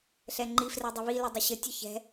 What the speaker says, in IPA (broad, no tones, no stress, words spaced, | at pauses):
ɬɛŋ͡ǃi frɛdˤəβi lədˤəɕə tʲɯçɛ̤